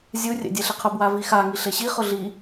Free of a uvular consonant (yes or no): no